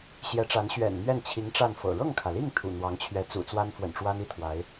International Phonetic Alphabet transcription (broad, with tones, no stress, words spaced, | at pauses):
ɕjɛ˧˥ʈ͡ʂa˧˥n ɕɥɛ̰˨˩nn̪ɥɛ˥˩n t͡ɕʰi˧˥ŋ ʈ͡ʂa˥˩nfɤ̰˨˩ ɻɤ˥˩ŋkʰä˩li˥˩ŋ t̪ʰṵ˨˩n̪wɑ˧˥ŋt͡ɕʰɥɛ˧˥ t͡sṵ˨˩t͡swa˥nfwə̰˨˩nʈ͡ʂwa˥n i˥˩ t̪ʰwa˧˥ɪ̯